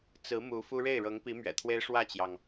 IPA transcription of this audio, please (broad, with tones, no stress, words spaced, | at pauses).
t͡sɹ̩˧˥ mu˧˥fu˥ ɻe˥˩ɪ̯ɻɤ˧˥ŋpi˧˥ mɥɛ̰˨˩t̪ʰwe˥ɪ̯ ʂwä˥˩t͡ɕjɑ˩ŋ